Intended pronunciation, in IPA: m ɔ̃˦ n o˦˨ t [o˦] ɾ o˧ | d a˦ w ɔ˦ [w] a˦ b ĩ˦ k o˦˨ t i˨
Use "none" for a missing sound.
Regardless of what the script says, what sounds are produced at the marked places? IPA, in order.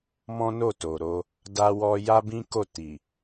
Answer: o˨, j

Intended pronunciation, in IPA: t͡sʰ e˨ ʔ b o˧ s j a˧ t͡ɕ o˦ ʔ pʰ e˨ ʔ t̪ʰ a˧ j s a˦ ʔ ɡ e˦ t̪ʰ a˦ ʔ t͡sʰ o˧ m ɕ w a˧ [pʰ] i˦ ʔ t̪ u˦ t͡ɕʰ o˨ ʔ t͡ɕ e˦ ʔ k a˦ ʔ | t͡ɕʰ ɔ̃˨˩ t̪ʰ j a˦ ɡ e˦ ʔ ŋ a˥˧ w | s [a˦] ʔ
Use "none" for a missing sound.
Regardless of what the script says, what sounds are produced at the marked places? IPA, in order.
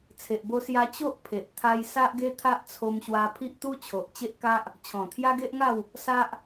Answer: pʰ, a˦

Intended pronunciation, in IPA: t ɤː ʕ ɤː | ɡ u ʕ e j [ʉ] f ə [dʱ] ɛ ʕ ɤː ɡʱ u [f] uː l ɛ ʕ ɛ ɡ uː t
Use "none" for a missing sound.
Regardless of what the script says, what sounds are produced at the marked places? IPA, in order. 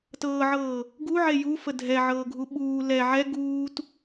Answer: u, dʱ, ɓ

